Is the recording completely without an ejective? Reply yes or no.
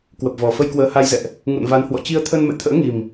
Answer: yes